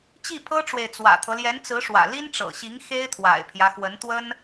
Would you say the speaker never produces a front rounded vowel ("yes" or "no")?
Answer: yes